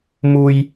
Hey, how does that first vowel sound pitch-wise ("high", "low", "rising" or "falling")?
low